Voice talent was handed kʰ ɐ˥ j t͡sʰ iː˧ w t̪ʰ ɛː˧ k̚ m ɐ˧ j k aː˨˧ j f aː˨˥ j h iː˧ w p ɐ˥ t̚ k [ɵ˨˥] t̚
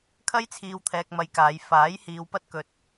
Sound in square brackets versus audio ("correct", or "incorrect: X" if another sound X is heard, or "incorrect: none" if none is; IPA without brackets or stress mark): incorrect: ɵ˧